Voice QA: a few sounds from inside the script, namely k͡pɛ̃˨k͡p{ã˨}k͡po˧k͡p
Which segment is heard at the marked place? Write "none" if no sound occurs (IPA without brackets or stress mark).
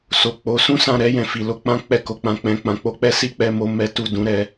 ã˨